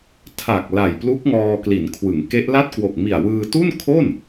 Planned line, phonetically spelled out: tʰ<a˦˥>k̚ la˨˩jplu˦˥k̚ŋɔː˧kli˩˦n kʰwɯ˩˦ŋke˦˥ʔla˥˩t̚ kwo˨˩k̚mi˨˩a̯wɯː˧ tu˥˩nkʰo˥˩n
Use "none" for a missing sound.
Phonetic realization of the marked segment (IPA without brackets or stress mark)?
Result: a˨˩